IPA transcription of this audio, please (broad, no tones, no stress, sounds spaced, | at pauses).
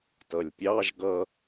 t ʌ lʲ pʲ ɑ ʒ ɡ ʌ